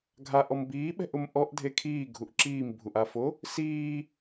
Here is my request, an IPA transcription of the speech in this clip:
ɡʱ a ʔ ɔ m b iː ɓ ɛ̤ ʔ ʊ m ʔ ɔ ʔ dʱ e kʰ iː ɡʱ u ʔ ǁ iː m bʱ u ʔ a f o | s iː

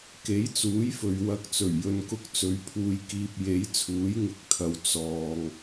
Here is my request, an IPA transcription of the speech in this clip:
k e˨˥ j t͡s uː˨˥ j f ɵ˨ ɥ w ɐ˧ k̚ t͡s ɵ˨˩ ɥ j ɵ˨ n k ʊ˧ k̚ t͡s ɵ˨˧ ɥ pʰ uː˧ j k iː˧ p̚ j e˨˥ j t͡sʰ uː˨˥ j ŋ ɪ˨˥ k̚ t̪ʰ ɐ˨ w t͡s ɔː˨ ŋ

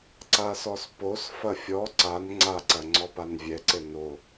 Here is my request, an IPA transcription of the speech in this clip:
ǀ a s ɔ s p o s f ɐ fʲ ɔ ǀ a n ŋ͡ǀ a ǀ ɐ ŋ͡ǀ ɔ p a n vʲ ɛ ǀ ɘ n o

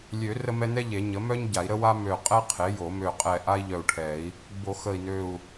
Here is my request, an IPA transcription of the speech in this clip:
lʲ ø˨˩˦ r ə˥ m ɛ˥ n ɛ˥ ʎ e˨˩˦ ɲ ə˩˥ m œ˥ ɲ ɟ a˨˩˦ i̯ ɾ ə˥ w a˥ m ø˧˩ qʼ ɛ˥ qʰ e˩˥ j o˨˩˦ m ø˧˩ qʼ ɛ˧˩ ʔ a˥ i̯ ʎ œ˧˩ u̯ ʈʰ ɛ˨˩˦ i̯ | b o˨˩˦ x ə˧˩ i̯ n ø˧˩ u̯

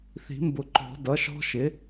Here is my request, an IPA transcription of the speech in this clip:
θ i̤˨˩˦ m b ʊ˨˩˦ ǃ ɔ̤˨˩˦ d ʌ˩˥ ʃ ɔ̤˦˥ ʃ ɪ˩˥

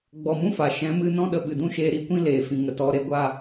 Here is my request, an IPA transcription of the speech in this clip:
ɡ͡b ɔ˨ m ũ˦ f a˨ ʃ ɛ̃˨˦ m ɨ˦ n ɔ̃˦ ɗ ə˧ ɓ ɨ˨ d ũ˦ ʃ eː˧ ɾ i˦ kʷ ĩ˦ l eː˨ f ĩ˨ ŋ ə˨ t ɔ˧ ɾ e˧ ɡʷ a˦˨

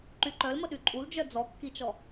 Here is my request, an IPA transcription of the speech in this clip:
ǃ y ǃ œ l m ə ɗ y ǃʼ u l d͡ʒ œ d͡z ɔ kː i t͡ʃ ɔ

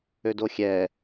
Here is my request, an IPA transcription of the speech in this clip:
ø d o xʲ ɛ

